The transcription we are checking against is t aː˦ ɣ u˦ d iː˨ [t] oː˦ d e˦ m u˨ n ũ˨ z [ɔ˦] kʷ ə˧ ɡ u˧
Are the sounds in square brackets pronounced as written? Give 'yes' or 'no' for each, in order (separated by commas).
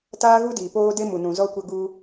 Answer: no, yes